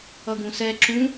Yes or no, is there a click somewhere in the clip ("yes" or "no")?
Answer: yes